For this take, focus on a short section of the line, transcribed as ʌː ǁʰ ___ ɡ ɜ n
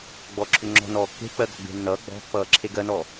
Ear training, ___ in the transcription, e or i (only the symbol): e